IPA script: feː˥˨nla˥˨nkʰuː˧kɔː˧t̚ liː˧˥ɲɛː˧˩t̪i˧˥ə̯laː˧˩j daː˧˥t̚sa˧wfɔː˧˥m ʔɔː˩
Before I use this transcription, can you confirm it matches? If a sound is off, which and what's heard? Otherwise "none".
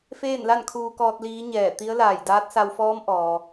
none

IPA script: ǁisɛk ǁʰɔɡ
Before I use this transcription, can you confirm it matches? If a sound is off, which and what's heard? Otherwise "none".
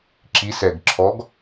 k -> ɡ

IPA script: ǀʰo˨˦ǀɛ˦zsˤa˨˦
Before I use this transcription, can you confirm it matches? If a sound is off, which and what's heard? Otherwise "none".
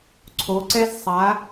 none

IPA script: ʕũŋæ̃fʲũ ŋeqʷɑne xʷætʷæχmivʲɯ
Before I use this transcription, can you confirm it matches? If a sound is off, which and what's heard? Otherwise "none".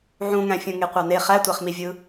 xʷ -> χ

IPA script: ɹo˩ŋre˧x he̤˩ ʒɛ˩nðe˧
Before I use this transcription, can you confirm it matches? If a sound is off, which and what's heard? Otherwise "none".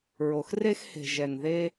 ŋ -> x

